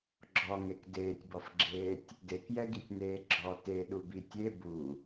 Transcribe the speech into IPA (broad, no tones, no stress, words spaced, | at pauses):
ɡ͡ǁɔŋek deːtʲbɔfɡ͡ǁeːtʲ | dekjɛɡitʲneː ɡ͡ǁɔ teɗubi tʲe bu